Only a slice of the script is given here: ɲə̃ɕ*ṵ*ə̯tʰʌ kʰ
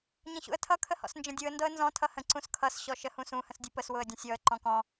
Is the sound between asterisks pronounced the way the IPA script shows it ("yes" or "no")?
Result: yes